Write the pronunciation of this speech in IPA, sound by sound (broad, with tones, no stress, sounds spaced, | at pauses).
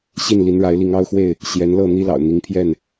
ɕ i˥˨ n l i˨˦ n ɻ a˨˦ ɪ̯ l i˨˦ ŋ ɑ˦ ʊ̯ x w e˥˨ ɪ̯ | ɕ j ɛ˨˦ n l ɤ˥˨ n̪ i˦ l ɑ̰˨˩ ʊ̯ n̪ i˨˦ ŋ pʰ j ɛ˥˨ n